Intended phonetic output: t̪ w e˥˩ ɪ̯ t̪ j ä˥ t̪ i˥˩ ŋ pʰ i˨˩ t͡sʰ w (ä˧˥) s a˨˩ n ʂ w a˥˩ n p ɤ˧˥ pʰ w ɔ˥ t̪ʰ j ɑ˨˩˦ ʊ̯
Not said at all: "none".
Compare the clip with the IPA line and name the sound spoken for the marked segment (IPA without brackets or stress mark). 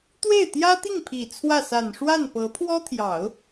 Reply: ä˥˩